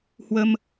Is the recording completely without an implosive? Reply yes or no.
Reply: yes